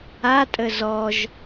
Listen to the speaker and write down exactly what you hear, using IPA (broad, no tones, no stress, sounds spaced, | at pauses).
a tʼ ə z ɔ ʒ